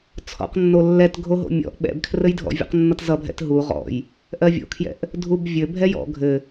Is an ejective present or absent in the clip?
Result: absent